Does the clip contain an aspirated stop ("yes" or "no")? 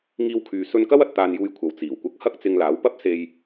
yes